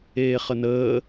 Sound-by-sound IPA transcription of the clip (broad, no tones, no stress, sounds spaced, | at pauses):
eː χ ə n əː